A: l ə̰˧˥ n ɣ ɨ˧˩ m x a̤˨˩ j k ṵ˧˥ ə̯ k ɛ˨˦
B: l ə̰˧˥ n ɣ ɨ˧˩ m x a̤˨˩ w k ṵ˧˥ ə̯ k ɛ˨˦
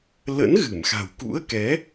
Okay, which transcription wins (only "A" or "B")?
B